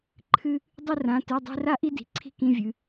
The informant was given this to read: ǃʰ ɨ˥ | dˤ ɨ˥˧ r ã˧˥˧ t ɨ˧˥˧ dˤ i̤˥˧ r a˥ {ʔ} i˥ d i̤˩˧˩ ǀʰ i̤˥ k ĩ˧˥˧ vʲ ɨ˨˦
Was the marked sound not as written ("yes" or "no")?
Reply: no